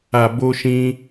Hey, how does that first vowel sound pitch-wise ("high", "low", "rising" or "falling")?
low